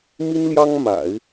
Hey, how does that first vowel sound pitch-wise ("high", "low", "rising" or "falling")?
high